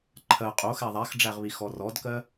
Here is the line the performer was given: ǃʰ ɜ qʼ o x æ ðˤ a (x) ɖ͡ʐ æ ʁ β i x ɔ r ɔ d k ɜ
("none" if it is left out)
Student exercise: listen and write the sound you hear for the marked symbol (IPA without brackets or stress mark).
x